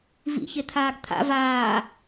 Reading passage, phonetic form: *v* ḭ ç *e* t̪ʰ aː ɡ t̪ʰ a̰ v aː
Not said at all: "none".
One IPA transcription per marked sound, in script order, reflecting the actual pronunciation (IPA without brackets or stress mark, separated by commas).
v, e